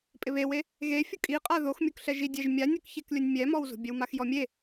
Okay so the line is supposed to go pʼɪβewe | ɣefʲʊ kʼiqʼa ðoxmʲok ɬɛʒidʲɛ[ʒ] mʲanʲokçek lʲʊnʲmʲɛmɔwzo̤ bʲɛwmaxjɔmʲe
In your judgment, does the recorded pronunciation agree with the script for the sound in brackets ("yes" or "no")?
yes